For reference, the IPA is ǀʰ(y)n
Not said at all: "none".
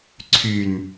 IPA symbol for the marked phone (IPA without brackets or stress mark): y